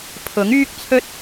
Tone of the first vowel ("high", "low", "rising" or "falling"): rising